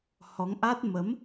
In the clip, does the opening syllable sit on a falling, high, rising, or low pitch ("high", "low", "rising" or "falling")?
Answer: rising